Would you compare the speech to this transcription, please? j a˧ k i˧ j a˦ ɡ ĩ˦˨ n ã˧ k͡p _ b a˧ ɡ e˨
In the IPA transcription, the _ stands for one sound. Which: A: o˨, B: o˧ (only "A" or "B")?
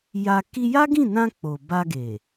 A